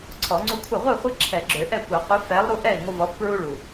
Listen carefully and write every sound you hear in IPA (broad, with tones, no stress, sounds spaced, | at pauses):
ǀʰ ɔ˨˩˦ ŋ͡ǀ u˦ kʷʰ ɪ˥˩ ʁʷ ɛ˥˩ χʷ ɪ˦ ǁʰ ɛ˨˩˦ ɡ͡ǁ ø˨˩˦ ʔ ɛ˥˩ kʷ ɛ˨˩˦ qʷ ɪ˨˥ f ɛ˨˥ lˠ ɾ u˦ ʔ ɛ˥˩ i̯ ŋʷ ə˦ v ɔ˨˥ f p ɹ u˦ ɭ u˨˩